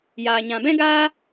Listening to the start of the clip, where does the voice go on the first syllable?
low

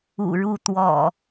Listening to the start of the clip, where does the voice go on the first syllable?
low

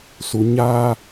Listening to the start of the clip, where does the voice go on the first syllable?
low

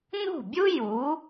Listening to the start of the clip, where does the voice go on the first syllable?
falling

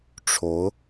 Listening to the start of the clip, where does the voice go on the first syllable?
rising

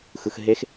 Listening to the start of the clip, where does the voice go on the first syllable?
low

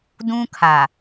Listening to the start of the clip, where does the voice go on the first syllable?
high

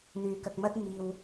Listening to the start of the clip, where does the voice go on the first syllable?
low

